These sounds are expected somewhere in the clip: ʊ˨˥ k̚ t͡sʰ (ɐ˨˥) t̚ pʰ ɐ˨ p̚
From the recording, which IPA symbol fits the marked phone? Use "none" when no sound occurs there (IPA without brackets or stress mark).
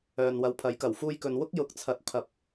ɐ˨˥